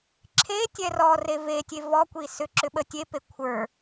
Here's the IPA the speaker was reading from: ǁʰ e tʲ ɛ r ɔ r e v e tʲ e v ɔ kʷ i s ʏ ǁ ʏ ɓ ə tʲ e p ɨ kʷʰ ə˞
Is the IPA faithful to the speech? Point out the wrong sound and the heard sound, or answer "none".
ɨ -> e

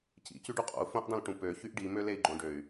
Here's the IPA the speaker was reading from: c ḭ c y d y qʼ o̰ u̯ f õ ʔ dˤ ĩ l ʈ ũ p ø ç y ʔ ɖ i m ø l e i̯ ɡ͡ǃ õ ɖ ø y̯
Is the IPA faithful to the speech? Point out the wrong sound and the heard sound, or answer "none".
d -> ɖ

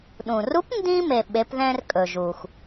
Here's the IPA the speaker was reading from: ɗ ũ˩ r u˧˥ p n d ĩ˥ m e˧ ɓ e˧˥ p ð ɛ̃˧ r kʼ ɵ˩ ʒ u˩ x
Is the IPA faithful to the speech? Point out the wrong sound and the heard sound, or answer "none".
none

